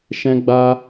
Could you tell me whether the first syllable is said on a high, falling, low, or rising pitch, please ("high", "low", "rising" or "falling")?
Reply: high